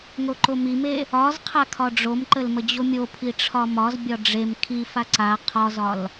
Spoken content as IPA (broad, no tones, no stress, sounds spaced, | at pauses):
ŋ o ǃ o m i m e | ɒ z qʰ a kʰ ɒ ɖ͡ʐ o m ǃ ə l m ə d͡ʑ o mʲ o pʰ i ʈ͡ʂʰ ɒ m ɒ z bʲ ɒ ɖ͡ʐ e m kʰ i f a ǀ a qʰ ɒ z ɒ l